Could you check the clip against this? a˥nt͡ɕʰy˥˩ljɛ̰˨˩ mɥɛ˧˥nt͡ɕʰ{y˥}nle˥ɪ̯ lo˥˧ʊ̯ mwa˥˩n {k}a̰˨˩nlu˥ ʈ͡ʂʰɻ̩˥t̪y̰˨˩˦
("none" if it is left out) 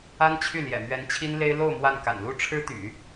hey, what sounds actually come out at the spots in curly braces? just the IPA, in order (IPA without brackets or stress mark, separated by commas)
i˥, k